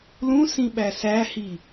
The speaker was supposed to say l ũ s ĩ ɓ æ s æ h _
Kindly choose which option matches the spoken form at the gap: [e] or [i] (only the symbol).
i